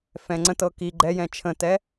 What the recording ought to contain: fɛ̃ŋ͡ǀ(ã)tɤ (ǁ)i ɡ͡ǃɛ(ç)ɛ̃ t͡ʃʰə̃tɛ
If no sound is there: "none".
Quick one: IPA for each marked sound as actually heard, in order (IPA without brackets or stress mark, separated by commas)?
ə̃, k, j